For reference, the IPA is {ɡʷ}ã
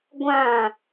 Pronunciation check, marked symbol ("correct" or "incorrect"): correct